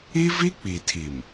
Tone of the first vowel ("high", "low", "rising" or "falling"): high